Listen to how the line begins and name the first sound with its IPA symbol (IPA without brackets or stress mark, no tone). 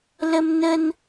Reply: l